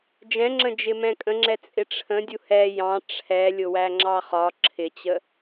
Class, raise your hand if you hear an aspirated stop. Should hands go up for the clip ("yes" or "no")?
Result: yes